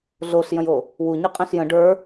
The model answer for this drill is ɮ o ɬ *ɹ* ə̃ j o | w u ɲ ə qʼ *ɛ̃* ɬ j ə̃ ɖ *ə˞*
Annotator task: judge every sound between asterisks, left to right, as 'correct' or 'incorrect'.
incorrect, correct, correct

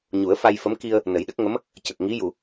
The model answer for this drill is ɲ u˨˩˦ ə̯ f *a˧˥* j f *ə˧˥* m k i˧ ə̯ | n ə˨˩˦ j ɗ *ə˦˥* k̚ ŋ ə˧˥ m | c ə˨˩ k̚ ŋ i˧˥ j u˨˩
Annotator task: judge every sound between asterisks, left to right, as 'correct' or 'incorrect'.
incorrect, correct, correct

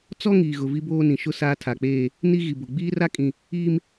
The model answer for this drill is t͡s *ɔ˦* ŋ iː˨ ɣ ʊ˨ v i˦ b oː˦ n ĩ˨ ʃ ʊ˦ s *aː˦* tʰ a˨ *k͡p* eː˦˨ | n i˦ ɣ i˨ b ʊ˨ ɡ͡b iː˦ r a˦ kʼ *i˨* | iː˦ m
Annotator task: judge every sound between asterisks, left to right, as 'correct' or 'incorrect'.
correct, correct, correct, incorrect

